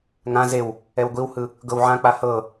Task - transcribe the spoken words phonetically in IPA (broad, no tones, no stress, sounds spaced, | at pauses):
ŋ ã z e w | ɛ w ɡʷ i w h ɯ | ɡ ɤ w ʕ ã k͡p a h ɤ